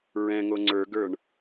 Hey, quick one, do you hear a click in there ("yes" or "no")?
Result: yes